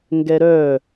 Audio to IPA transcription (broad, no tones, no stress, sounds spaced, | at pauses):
ŋ ɡ ɛ ɾ œ